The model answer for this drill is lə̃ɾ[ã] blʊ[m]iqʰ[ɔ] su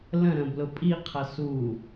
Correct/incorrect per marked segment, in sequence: incorrect: ə̃, incorrect: pʼ, incorrect: ʌ

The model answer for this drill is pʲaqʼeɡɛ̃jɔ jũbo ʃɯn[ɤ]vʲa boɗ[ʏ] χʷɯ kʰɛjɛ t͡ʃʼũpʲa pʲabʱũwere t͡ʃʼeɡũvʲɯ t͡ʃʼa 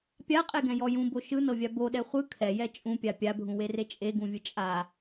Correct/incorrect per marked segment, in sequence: correct, incorrect: ɛ

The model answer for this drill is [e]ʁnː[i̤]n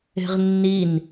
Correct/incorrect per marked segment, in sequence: incorrect: e̤, incorrect: i

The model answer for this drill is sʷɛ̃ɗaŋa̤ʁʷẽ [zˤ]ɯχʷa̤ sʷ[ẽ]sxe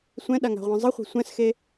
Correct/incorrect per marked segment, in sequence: correct, incorrect: ɛ̃

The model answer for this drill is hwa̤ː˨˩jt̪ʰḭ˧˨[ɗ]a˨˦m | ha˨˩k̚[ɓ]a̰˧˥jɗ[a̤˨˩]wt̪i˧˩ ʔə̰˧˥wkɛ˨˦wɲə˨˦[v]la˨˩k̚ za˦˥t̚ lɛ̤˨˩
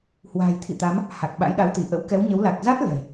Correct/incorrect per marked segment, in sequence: incorrect: t̪, correct, incorrect: a˨˦, incorrect: w

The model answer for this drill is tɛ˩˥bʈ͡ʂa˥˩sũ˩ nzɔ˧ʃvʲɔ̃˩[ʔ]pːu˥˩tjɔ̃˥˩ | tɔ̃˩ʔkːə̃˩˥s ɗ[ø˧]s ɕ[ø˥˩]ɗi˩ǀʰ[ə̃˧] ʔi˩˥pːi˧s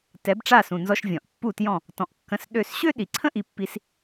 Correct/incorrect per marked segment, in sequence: correct, incorrect: ø˥˩, incorrect: ø˥, incorrect: ə̃˥

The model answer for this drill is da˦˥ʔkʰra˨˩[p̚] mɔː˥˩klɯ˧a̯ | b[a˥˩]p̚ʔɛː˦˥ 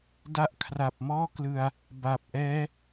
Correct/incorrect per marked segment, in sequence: correct, incorrect: a˨˩

